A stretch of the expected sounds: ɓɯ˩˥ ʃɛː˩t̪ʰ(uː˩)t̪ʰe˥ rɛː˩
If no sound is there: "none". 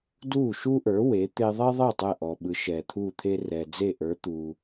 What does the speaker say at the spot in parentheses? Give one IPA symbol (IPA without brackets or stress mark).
uː˥˩